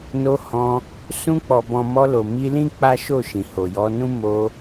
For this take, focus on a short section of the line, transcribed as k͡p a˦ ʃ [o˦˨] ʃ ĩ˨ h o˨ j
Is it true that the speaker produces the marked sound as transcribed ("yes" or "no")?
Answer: yes